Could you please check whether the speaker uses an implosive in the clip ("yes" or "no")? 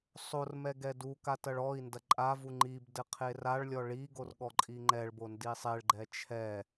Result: yes